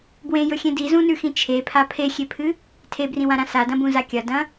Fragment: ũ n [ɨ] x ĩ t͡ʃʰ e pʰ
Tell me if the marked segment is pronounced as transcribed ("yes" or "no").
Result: no